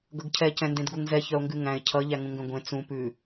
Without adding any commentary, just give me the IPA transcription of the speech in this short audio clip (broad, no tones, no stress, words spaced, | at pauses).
ɡʌɡcʰɛ cɛ̃ndẽdɡuŋzɛ çœo̯ŋɡʉŋæ̃e̯ cʰʌ ʎæŋũŋɡœ̃ɡʷẽ t͡sũ pʉ